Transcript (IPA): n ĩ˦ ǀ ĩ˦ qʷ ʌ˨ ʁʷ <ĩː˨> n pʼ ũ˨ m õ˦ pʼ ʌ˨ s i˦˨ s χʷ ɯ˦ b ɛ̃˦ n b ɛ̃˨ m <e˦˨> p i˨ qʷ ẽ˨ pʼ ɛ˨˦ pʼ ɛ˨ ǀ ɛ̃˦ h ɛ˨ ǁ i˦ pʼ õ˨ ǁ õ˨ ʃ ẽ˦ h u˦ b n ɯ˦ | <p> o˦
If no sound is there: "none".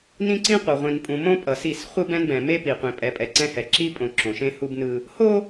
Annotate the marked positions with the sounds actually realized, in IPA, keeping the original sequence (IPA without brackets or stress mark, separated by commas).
ĩ˨, e˦, h